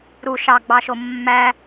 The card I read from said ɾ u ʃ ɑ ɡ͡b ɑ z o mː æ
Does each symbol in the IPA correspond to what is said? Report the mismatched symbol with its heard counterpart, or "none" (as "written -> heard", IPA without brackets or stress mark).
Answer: z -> ʃ